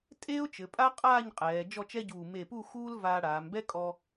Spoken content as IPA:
tʼ eː˥ ʊ̯ t͡ʃ ɘ˩˧ pʼ a˥ qʼ aː˥˧ ɲ qʼ ɛː˩˧ d͡ʒ ɔ˥˧ t͡ʃ ɛ˥ ɟ uː˧˩ m e˧˩ p u˥˧ x uː˥ l v aː˧ ɽ aː˩˧ m b ɛ˥ kʼ ɔ˧

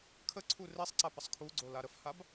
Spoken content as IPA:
kʰ ə ǀʰ u r e sˤ ǀ a p ə sˤ kʰ u ɡ͡ǀ o l a ɾ ə f h a b

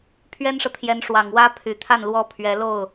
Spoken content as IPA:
pʰ ɥ ɛ˥ n ʂ ɤ˨ t̪ʰ j ɛ˧˥ n ʂ w ɑ˨˩ ŋ w ä˥ pʰ y˨˩ t̪ʰ a˥˩ n l w ɔ˥ pʰ ɥ ɛ˧˥ l o˥˩ ʊ̯

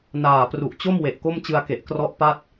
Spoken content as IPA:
n aː˨˩ p r u˨˩ ʔ t͡ɕ o˥˩ m w e˨˩ ʔ k o˥˩ m t͡ɕ ɯ˧ a̯ k e˨˩ ʔ k r ɔ˦˥ ʔ p a˥˩ t̚

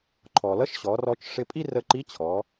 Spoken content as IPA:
ǃʰ ɔ˩ l ʌ˧˥ ʃ ɕ ɔ˩˧ r ɔ˧ t͡ʃ ʂ ɪ˧ pʼ i˥ r ə˧ ǃ i˧˥ t͡ɕʰ ɔ˩˧

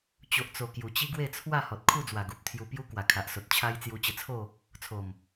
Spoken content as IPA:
t͡ɕ o˨ ʔ t͡s o˨˩ k j u˨˩ t͡ɕ i˦ ɡ w e˥˧ t͡sʰ w a˥˧ h ɔ˨ t̚ kʰ u˥˧ d͡z w a˨˩ ɡ u˨ p̚ t̪ʰ j u˧ p j u˦ k w a˨˩ kʰ a˨ ʔ s o˨ t̚ t͡ɕʰ a˧ j t͡s j u˧ t͡ɕ ə˧ t͡sʰ o˥˧ | t͡sʰ o˨˩ m

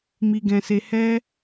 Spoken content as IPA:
m i˧ ɡ ɛ̃˧ s e˧ h ɛ˦

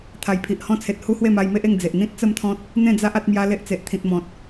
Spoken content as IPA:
t̪ʰ a˨˩ j pʰ i˨ ʔ h ɔ̃˦ t͡sʰ e˨ t̚ h u˦ h w e˥˧ m a˧ j m e˦ ʔ e˥˧ ŋ d͡z e˨ ʔ n̪ ĩ˦ t̚ t͡s ə˥˧ m t̪ʰ ɔ̃˦ t̚ | n̪ ẽ˥˧ d͡z a˦ ʔ a˦ t̚ m j a˦ l e˦ ʔ t͡s e˨ ʔ t̪ʰ ĩ˨ t̚ m ɔ̃˨ t̚

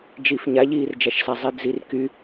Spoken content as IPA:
d͡ʒ i f ɲ a ʎ iː r d͡ʒ a ʃ s a zˤ i d͡z i r k y

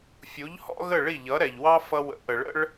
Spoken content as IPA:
fʲ u˩˥ ʎ h ɔ̰˥ ɣ ə˥˩ ɭ i˥˩ ʎ ʌ˩˥ ɾ ɛ˩ ʎ w ɑ˥ f ʌ˧ w ə̰˩˥ ʔ ə˩ ɭ ə̰˥ ɭ

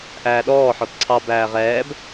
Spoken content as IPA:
ʔ æː ɗ ɔː ħ ɔ t ǀʰ ɑ b æː ʁ ɛː b

